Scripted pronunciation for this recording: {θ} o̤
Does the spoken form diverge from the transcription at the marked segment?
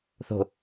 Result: no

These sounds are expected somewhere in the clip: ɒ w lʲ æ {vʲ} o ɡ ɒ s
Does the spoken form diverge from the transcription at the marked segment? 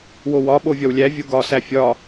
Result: no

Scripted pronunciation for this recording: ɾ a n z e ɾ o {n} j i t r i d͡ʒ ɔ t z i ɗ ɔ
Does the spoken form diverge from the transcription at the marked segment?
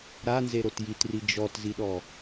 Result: yes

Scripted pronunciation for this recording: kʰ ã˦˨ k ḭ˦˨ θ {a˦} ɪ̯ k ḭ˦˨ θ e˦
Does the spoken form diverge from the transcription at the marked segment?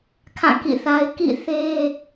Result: no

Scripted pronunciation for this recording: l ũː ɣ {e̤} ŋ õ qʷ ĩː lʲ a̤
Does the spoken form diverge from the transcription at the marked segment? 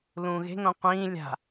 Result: no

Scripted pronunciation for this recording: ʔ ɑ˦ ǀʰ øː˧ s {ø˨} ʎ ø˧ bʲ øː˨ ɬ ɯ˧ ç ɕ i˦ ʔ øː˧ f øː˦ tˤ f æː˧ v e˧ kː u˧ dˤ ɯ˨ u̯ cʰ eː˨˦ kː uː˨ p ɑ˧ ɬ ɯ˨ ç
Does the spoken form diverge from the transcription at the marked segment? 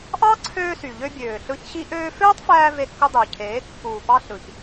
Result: yes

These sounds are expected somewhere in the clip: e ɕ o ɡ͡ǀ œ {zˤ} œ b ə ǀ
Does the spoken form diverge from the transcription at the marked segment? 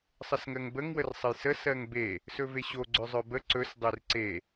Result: no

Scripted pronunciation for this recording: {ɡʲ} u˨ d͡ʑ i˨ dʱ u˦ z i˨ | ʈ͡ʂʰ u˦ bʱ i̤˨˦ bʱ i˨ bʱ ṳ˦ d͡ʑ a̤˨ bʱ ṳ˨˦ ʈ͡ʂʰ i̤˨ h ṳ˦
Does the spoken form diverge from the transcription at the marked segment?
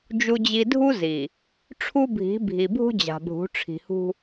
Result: yes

